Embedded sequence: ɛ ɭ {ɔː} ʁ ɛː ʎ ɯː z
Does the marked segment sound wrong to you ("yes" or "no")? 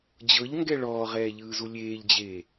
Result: no